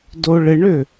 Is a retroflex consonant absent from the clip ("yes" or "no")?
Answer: no